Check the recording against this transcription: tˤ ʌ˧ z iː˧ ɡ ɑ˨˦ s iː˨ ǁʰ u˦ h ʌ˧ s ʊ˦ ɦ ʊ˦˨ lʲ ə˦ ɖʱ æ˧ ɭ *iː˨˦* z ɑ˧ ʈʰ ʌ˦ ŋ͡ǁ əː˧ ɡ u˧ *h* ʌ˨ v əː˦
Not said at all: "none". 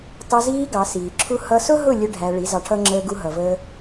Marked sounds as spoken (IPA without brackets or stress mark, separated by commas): i˨˦, ɦ